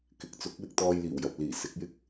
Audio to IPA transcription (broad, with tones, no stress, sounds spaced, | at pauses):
k ɪ˨˥ k̚ t͡s ʊ˨˥ k̚ w ɪ˧ k̚ t̪ ɔː˧ j l iː˨˩ w j ɐ˨ p̚ l iː˨˩ s ɪ˨˥ k̚ j ɪ˥ k̚